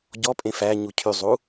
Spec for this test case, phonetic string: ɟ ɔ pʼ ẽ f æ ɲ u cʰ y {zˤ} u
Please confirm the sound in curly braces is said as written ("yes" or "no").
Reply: yes